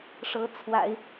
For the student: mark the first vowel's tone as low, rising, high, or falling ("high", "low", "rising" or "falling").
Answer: rising